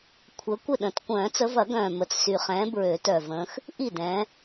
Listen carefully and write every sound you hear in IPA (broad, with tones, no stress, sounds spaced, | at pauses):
kʷʰ ə˨˦ kʷ ɪ˥˩ ɗ ə̃˨˩˦ t kʷ œ̃ː˨˩˦ t͡s ə˨˦ v ɐ˨˩˦ ɡ œ̃ː˨˩ m ə˨˩ t͡s s y˨˩ χ ɛ̃ː˨˦ b ɹ ø˨˩˦ t œ˨˩ v ə̃ː˨˦ x | ʔ i˥˩ d ɛ̃ː˨˦